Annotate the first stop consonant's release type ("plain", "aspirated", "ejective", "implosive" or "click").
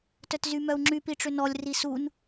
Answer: plain